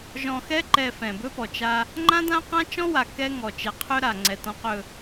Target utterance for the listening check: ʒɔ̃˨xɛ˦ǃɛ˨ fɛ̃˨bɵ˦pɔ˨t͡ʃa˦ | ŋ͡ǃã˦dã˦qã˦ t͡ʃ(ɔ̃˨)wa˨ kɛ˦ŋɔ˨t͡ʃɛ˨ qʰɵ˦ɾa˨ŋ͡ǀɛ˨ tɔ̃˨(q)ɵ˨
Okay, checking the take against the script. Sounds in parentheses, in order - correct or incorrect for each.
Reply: incorrect: ɔ̃˦, correct

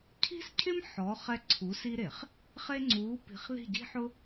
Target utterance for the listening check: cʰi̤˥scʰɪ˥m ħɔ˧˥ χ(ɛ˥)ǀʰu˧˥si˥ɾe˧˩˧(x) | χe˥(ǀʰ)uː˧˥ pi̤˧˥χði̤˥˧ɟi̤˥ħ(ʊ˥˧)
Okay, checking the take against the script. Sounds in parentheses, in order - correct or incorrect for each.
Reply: correct, incorrect: χ, incorrect: ŋ͡ǀ, incorrect: ʊ˥

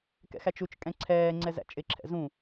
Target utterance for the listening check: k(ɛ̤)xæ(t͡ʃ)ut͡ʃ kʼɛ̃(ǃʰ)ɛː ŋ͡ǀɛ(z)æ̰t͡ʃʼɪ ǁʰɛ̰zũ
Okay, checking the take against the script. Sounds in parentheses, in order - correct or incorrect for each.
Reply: incorrect: ɛ̰, correct, incorrect: ǀʰ, correct

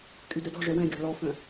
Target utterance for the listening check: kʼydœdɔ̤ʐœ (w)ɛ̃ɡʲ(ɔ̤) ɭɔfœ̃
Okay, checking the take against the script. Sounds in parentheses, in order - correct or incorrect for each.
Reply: correct, correct

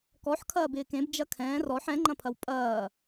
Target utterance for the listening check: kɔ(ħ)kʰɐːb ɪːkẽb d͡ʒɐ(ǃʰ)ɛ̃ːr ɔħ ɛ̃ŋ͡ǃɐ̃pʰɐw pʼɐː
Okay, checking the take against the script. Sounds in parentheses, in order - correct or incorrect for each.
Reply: correct, incorrect: kʰ

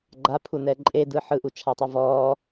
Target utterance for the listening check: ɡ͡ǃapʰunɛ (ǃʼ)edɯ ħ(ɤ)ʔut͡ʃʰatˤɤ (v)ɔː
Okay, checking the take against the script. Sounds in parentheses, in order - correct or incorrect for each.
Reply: correct, incorrect: ɯ, correct

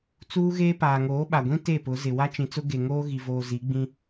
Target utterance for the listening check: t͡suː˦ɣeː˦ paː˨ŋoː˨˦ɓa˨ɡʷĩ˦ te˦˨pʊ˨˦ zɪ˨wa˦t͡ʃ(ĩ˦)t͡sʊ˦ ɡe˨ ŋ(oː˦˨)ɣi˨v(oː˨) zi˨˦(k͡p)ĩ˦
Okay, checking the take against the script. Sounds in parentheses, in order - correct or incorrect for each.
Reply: incorrect: ĩ˨, incorrect: oː˦, correct, incorrect: ɡ͡b

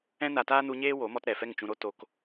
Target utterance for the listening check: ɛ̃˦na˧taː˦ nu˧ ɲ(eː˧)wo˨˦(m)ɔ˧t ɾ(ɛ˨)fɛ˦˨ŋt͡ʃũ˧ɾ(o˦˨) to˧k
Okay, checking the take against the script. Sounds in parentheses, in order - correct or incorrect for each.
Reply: incorrect: eː˦, correct, correct, incorrect: o˦

